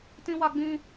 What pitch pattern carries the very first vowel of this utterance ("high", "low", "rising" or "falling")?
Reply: high